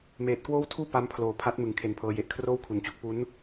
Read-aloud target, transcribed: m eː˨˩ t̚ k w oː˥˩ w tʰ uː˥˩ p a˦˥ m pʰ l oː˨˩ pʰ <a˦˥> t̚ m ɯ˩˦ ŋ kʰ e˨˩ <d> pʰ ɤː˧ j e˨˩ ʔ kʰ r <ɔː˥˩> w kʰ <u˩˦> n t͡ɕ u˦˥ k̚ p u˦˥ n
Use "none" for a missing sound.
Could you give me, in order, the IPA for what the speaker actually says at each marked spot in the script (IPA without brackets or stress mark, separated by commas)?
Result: a˦˥, n, oː˥˩, u˩˦